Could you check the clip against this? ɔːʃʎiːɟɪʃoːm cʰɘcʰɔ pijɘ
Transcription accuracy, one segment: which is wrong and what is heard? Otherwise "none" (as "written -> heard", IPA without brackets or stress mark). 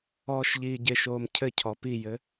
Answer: none